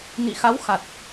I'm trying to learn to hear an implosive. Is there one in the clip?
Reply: no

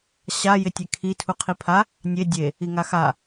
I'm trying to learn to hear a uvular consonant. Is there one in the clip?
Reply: yes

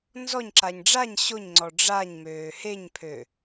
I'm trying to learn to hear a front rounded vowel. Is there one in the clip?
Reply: yes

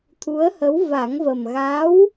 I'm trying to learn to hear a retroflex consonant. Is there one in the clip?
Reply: no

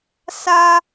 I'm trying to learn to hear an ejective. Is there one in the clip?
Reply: no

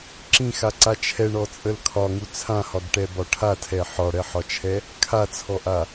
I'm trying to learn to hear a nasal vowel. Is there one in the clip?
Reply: yes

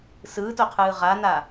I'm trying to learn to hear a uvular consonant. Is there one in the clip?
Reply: yes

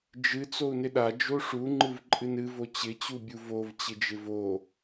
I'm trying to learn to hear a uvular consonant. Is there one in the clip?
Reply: no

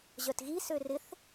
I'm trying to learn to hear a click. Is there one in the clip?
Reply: no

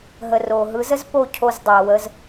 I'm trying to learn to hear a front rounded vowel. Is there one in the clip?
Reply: no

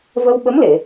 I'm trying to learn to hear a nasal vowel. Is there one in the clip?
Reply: no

